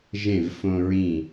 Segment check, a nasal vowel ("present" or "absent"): present